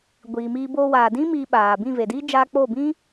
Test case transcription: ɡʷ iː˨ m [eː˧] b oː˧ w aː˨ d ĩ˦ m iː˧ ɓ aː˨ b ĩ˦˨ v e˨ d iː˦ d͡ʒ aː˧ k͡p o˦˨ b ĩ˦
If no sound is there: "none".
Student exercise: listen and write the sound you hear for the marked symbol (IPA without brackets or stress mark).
iː˧